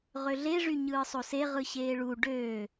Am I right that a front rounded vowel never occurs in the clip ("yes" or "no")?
no